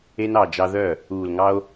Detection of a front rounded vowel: present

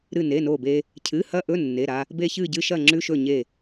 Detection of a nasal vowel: absent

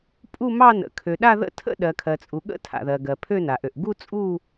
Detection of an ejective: present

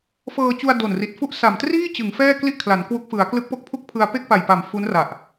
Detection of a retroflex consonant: absent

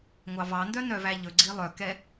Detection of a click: present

